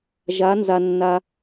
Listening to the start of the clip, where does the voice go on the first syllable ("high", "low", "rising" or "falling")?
rising